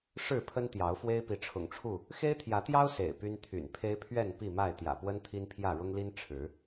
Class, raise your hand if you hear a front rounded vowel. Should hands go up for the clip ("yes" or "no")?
yes